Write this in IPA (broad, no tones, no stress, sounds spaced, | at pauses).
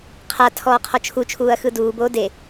qʰ a tʰ ɔː qʰ ɔ t͡ʃʰ u t͡ʃʰ uː ɐ̯ x ɯ d uː b oː d e